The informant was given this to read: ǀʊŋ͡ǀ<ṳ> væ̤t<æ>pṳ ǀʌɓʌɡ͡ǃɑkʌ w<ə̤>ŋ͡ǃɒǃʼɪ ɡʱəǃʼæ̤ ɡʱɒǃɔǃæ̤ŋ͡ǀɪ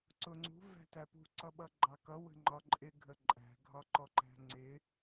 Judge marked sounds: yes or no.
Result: yes, yes, yes

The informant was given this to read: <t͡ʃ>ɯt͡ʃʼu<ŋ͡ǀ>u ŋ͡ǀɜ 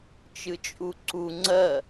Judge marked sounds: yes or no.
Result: yes, no

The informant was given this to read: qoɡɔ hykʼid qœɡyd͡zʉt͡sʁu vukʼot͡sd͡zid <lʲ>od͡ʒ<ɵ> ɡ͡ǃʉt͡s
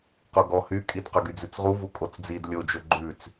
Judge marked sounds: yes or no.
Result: yes, yes

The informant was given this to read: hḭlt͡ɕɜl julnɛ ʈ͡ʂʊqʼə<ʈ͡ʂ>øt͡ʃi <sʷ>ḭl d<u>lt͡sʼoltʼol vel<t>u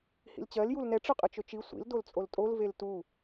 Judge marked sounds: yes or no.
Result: no, yes, no, yes

